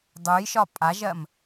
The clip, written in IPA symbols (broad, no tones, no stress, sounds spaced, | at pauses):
dˤ u j ʃ ɒ pʼ a ʒ ɜ m